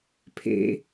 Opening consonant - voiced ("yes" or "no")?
no